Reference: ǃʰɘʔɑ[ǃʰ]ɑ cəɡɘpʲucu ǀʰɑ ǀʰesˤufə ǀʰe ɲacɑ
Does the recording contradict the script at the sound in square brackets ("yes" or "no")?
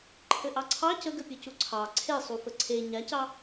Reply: yes